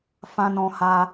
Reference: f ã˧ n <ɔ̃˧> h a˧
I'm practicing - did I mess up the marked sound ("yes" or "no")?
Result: no